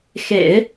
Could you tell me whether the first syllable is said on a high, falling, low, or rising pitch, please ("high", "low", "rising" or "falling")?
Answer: low